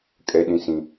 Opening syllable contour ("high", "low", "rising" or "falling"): high